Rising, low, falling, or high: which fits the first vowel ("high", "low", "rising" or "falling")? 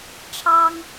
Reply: high